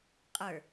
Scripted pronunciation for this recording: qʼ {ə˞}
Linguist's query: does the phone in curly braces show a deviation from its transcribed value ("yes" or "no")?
no